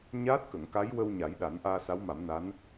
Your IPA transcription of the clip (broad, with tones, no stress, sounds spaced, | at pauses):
ɲ aː˦˥ t̚ k ə˨˩˨ ŋ k a˧˥ j w ə˧ w ɲ a˨˩˦ j ɗ a˨˩˦ n ʔ aː˧ s a˧˥ w m a˨˩˦ m n a˧˥ n